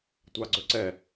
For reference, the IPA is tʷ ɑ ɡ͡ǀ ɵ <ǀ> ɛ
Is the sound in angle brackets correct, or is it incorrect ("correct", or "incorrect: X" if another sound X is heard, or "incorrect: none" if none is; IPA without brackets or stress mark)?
correct